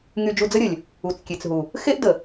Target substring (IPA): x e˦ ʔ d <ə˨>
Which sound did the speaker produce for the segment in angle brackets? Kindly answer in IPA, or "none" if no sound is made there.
ə˨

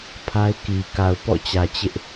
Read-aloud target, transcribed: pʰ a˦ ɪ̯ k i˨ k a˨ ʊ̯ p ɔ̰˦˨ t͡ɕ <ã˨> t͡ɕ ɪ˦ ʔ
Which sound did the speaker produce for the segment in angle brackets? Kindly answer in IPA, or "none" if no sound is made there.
ä˨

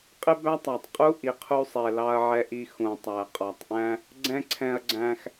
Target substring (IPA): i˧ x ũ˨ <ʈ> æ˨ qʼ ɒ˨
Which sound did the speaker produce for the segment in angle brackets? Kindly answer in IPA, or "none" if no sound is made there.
tˤ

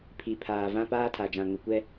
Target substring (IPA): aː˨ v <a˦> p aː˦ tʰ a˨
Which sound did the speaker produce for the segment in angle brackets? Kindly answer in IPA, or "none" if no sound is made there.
ã˦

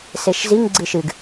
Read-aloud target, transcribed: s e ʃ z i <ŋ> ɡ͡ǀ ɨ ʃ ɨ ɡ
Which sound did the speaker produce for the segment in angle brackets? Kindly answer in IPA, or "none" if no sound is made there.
ŋ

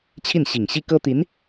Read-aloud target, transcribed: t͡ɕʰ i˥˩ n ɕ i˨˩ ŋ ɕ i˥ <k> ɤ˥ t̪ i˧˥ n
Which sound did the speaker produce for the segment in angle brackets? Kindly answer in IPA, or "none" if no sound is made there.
k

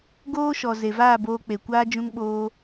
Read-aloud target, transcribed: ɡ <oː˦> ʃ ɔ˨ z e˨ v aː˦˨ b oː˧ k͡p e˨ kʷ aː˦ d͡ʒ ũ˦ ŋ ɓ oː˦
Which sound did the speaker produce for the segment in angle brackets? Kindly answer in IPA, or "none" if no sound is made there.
oː˦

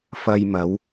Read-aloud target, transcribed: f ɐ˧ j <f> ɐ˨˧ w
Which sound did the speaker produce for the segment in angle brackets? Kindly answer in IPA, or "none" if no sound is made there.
m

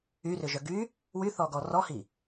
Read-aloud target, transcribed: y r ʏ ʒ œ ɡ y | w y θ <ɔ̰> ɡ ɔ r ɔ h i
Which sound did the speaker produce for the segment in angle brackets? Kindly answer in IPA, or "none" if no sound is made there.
ɔ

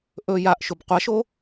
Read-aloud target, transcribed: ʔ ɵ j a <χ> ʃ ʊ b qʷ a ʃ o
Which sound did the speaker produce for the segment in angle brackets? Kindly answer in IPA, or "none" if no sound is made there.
ʔ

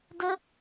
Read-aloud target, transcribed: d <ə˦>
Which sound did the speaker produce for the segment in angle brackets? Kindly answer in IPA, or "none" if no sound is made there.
ə˦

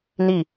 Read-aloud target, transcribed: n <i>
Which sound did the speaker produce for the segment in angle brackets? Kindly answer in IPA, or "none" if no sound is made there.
i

